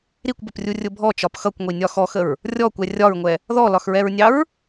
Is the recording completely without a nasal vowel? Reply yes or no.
yes